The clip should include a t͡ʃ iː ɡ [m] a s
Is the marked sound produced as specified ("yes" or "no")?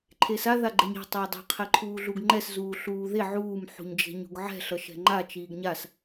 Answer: no